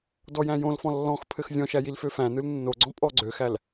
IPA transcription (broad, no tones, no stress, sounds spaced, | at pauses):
d ɔ j æ̃ j õ l f ɔ̃ lː ɔ̃ x pʰ ɘ x zʲ ɔ̃ ʃ æ j i l f ø f æ̃ n ɯ l nː o ɡ͡ǀ ɔ̃ pʼ ɔ ɡ͡ǀ ø x æ l